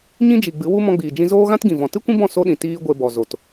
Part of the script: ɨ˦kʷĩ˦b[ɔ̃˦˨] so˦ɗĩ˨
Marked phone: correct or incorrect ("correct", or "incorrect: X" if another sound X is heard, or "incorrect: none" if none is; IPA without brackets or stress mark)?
correct